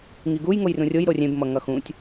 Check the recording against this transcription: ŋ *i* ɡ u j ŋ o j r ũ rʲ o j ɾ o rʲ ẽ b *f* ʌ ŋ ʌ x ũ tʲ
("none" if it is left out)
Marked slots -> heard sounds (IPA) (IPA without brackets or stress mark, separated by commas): i, m